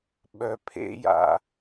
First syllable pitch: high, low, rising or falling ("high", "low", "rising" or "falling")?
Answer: low